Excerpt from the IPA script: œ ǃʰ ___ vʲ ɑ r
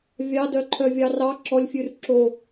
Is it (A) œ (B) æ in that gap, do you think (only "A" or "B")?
A